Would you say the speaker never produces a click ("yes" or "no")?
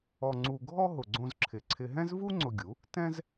no